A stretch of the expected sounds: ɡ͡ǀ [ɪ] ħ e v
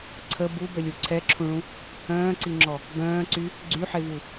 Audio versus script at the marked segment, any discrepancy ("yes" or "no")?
yes